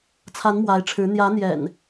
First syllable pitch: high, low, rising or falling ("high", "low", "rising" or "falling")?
rising